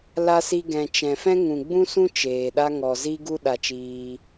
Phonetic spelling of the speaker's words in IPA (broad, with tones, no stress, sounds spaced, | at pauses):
l a˧ s i˧ ɡ ɛ̃˨ t͡ʃ ɛ̃˨ f ɛ̃˦ ŋ ũ˨ ɡ͡b ũ˦ s ũ˦ t͡ʃ eː˨ ɗ a˦ ŋ ɔ˨ z i˦ ɡ u˦ ɗ a˧ t͡ʃ iː˧